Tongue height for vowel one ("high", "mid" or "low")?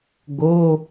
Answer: mid